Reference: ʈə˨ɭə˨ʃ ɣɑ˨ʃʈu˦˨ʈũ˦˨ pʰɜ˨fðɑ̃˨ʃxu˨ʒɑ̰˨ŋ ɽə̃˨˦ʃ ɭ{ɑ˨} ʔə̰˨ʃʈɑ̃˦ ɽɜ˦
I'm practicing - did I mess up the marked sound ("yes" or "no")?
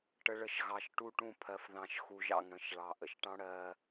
no